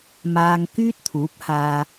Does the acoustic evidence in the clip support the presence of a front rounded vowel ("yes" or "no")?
yes